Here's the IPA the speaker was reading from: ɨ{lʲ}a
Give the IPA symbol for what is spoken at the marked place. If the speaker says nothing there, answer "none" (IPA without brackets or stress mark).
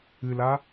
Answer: l